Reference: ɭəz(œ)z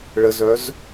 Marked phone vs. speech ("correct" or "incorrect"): correct